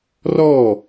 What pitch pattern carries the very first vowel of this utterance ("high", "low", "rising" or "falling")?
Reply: falling